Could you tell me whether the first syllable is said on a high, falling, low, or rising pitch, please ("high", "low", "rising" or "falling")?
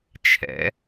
rising